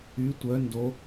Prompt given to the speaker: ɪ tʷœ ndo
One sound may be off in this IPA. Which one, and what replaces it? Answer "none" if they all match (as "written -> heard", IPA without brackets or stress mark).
ɪ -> y